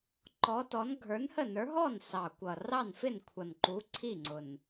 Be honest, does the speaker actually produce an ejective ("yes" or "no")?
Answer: no